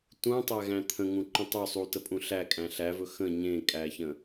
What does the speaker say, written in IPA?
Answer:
t ũ tˤ æ ɣ æ̃ t̪ʰ ə̃ ŋ ũ ǃ ũ tˤ ɵ sˤ u t ə pʼ ũ ɬ æ kʼ æ̃ ɬ æ v ɵ x ə̃ ɲ ẽ kʼ æ ç ə̃

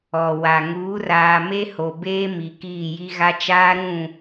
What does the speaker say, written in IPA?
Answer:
ɔ˨ w a˨ ŋ uː˨˦ r aː˨ m e˦ h o˨ b eː˦ m i˨ k iː˦˨ j i˦ ɣ a˦ t͡ʃ aː˦ ɾ ũ˦˨

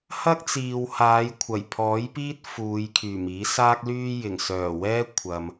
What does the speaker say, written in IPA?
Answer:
h ɐ˥ k̚ t͡s iː˨ w h aː˨˧ j kʷʰ ɐ˨˩ j pʰ ɔː˨˥ j p iː˥ t̚ f uː˨˧ j kʰ yː˨˩ m iː˨˥ s aː˥ k̚ l yː˥ j ɪ˨˩ ŋ s œː˨˩ w ɛː˥ kʷʰ ɐ˨ m

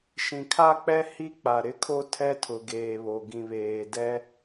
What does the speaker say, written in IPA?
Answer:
ʃ ĩ˨ kʰ a˦ k͡p ɛ˦ h i˦ k͡p a˨ ɾ ɪ˦ kʰ o˦ tʰ ɛ˦ tʰ ʊ˨ ɡ eː˨ β o˨ ɡ ĩ˨ β eː˨ d ɛ˦

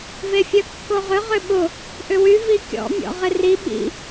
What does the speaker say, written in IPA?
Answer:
v e fʲ œ kː o ʁ ʏ ʁ ʏ ɓ ʊ | ʔ ʏ w y v i kʲ ɔ̰ mʲ ɔ̰ ʁ ɪ r i ɓ ḭ

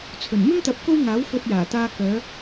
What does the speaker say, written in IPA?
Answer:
t͡sʰ ɵ˨˩ n m ɪ˥ ŋ t̪ ɐ˨˥ p̚ k o˥ w ŋ aː˨˥ w f ɵ˧ t̚ j aː˨˩ t̪ aː˧ k œː˨˧

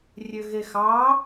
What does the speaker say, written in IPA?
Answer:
rʲ ø ɣ e x ɑ

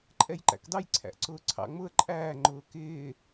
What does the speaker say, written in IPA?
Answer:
ǃʼ ɛ j ǃ æ̰ k d ɑ j ǀʰ æ̰ ʔ ǀ ʊː ǀʰ ɑ̰ ŋ͡m ʊ ə̯ ǃʼ æː ŋ͡ǃ ʊː k ɪː

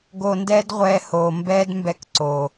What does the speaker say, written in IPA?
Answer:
ɡ o˧ n d ɛː˦ d ʁʷ ɛː˧ h o˨ m b ɛː˦ d m b ɛ˧ k ǀ o˨

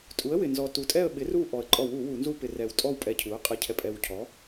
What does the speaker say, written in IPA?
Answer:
tʼ u˩˥ ə̯ w ɪ˨˩ n z ɔ˨˩ t u˨˩ tʼ ɛ˥˧ ə̯ ɓ ɪ˩˥ r u˥˧ ʔ ɔ˨˩ ə̯ ǃʼ ɔ˧˩˧ w u˧˩˧ w u˧˩˧ n z u˥˧ p ɪ˧˩˧ r ɛ˨˩ w tʼ ɔ˥˧ w pʼ ɛ˧˩˧ cʰ u˩˥ ə̯ qʼ ɛ˨˩ cʰ ɛ˨˩ pʼ ɛ˨˩ w cʰ ɔ˩˥

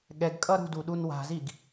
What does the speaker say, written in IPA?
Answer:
ɠ ɛ ɡ kʼ ʌ ɾ ṳ d u ɗ u n w a̤ z i ɡ

